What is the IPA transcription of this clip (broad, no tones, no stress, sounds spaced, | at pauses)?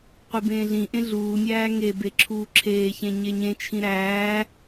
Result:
qʷ i b ẽː ɮ ĩ ʔ ẽ ɮ uː nʲ æː ŋ e b e ǁʰ uː ǁʰ eː ç ẽ ɲ e ɲ ẽ t͡ʃʰ ĩ ɾ æː